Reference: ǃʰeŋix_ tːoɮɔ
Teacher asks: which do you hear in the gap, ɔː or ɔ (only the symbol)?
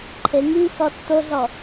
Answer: ɔ